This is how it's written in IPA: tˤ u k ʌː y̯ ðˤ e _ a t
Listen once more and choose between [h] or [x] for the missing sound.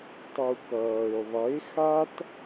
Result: x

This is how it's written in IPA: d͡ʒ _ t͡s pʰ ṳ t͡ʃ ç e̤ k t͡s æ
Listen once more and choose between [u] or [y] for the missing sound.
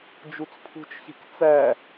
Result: u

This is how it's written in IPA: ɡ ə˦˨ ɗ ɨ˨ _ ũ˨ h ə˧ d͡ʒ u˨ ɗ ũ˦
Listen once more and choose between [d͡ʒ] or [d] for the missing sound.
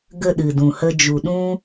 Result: d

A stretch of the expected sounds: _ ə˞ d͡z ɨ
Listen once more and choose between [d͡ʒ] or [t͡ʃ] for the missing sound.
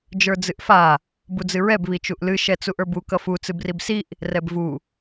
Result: d͡ʒ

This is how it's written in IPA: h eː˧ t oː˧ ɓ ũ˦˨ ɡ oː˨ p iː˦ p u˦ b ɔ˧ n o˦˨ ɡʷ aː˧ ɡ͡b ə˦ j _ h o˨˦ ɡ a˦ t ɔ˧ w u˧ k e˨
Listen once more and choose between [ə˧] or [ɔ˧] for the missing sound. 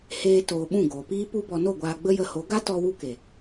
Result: ə˧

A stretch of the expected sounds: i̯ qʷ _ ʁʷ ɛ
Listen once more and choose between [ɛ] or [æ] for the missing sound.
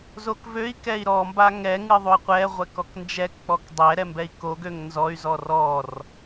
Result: ɛ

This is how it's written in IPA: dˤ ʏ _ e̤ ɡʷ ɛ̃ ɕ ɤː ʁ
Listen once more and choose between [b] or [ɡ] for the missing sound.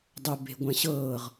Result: b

